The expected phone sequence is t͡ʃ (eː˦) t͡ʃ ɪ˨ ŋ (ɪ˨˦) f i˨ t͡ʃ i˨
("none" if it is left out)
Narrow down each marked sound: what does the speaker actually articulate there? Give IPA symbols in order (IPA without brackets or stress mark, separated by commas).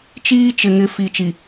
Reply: iː˦, ɪ˨˦